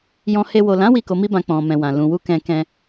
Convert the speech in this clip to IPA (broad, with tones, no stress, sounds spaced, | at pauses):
j ɔ̃˧ h e˧ w o˨ l ã˨˦ w i˦˨ k o˧ m i˦ b ã˧ k͡p ɔ̃˨ m ɛ̃˨ w ã˨ l ũ˨ w u˧ k ɛ̃˧ k ɛ̃˧